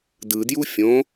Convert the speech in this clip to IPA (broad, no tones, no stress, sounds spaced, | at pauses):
d ɯ d j u fʲ õ